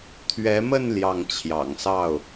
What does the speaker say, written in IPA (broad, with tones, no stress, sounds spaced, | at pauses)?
t̪ʰ ɥ ɛ˧˥ m ə˥˧ n l j ɑ˥˩ ŋ t͡ɕʰ j ɑ̰˨˩ ŋ s ɑ˥˩ ʊ̯